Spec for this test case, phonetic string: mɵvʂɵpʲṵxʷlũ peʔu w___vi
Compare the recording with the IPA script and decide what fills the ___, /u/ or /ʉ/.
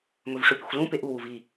u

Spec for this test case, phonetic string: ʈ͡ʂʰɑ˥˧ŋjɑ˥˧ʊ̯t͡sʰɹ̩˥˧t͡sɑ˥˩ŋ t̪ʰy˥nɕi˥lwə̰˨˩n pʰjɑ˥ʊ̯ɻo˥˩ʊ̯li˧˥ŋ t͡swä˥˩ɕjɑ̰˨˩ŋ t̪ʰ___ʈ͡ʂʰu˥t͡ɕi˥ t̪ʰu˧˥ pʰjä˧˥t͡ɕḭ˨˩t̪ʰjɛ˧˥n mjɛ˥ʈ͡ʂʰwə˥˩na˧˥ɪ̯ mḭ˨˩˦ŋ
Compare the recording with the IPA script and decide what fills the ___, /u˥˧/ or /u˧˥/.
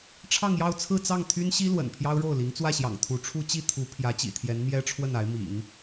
u˧˥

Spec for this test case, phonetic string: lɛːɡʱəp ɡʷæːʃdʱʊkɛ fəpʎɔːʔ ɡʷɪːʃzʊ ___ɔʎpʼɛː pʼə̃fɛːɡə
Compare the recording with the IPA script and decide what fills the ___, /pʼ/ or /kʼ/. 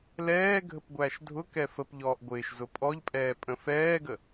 pʼ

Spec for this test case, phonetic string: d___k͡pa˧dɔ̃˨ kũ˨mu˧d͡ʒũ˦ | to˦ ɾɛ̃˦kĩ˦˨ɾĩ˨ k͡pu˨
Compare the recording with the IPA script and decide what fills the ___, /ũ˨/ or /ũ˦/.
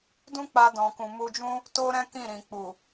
ũ˦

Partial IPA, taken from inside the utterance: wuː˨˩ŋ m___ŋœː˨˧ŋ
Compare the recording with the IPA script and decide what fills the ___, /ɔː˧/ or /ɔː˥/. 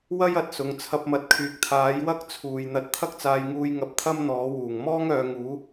ɔː˥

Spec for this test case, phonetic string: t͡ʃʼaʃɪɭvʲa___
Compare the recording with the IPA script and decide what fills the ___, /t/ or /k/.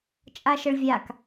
k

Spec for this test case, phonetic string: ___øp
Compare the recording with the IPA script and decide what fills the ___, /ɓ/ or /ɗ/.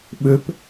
ɓ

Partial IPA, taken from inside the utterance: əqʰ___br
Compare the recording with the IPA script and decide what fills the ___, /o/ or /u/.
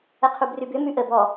u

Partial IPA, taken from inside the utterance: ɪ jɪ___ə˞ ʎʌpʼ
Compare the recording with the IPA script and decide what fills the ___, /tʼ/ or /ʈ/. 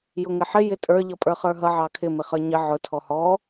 tʼ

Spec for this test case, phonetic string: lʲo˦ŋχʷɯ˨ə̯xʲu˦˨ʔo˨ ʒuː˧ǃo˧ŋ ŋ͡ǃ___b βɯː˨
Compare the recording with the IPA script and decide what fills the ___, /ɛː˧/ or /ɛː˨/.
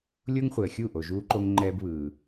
ɛː˧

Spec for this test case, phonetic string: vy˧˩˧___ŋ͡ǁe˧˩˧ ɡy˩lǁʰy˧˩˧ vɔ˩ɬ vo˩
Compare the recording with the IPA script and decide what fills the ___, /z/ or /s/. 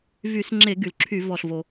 s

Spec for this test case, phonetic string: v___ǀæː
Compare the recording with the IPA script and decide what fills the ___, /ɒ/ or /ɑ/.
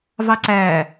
ɑ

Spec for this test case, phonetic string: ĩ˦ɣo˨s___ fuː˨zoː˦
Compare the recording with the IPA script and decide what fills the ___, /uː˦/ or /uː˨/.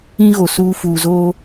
uː˦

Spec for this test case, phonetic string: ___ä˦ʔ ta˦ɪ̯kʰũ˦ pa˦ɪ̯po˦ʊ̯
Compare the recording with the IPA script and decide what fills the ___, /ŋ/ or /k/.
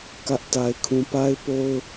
k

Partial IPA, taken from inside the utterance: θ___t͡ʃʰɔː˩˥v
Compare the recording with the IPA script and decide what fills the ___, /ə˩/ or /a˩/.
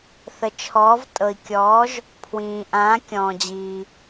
ə˩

